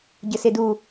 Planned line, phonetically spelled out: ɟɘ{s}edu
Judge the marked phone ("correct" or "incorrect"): correct